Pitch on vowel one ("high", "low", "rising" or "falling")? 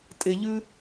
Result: high